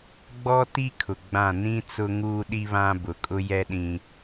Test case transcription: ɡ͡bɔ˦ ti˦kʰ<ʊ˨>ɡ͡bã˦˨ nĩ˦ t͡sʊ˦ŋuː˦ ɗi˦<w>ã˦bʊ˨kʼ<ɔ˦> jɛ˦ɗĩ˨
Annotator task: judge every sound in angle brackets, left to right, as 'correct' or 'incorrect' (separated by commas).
correct, incorrect, incorrect